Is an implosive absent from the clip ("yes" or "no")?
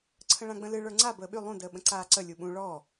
no